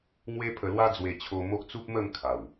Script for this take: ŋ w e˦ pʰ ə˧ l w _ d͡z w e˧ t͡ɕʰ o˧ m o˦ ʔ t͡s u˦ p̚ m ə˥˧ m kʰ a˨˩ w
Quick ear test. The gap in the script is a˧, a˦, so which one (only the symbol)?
a˦